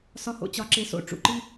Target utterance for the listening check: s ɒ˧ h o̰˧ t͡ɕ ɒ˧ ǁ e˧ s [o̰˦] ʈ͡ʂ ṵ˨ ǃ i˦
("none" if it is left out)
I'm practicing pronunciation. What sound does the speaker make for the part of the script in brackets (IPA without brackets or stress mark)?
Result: o̰˧